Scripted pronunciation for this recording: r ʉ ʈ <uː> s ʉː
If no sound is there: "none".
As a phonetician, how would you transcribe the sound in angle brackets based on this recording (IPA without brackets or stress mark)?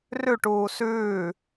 uː